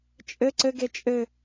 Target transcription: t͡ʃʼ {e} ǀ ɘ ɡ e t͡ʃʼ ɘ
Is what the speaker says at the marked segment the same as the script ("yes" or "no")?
no